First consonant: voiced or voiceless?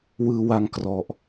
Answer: voiced